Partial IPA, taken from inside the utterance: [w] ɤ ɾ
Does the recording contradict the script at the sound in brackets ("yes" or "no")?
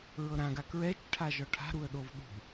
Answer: yes